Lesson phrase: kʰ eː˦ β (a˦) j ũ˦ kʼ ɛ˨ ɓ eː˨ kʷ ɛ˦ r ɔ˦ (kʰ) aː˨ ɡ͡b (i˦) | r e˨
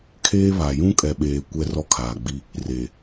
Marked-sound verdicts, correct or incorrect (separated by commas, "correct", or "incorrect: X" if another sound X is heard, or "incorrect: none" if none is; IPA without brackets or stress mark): incorrect: a˨, correct, correct